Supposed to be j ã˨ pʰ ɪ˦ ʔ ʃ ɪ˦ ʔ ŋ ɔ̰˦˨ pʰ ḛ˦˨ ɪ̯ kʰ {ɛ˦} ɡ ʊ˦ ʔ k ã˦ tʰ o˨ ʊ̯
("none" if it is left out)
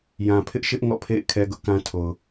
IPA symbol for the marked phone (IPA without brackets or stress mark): ɛ˦